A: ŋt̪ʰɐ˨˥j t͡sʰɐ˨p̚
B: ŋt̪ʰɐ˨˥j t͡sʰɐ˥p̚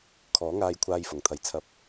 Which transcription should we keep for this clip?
A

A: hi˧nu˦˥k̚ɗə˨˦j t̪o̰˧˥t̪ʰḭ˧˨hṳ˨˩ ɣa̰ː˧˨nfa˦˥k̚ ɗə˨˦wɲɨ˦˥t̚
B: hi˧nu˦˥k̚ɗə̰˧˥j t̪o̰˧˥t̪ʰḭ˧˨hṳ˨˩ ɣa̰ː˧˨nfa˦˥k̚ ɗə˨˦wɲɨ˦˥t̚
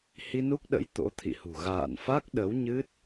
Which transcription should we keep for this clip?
B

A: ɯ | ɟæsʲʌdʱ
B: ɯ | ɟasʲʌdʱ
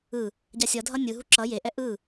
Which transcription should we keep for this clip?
B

